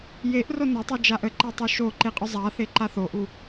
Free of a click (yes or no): no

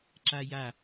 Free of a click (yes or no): no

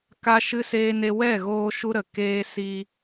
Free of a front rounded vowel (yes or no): yes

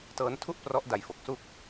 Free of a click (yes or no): yes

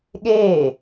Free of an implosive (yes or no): no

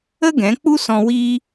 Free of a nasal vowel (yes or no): no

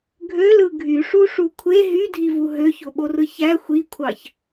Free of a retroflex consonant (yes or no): no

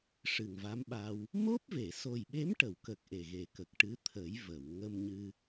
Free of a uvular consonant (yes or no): yes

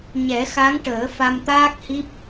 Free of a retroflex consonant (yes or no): no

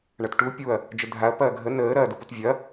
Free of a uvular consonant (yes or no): yes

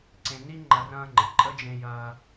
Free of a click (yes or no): no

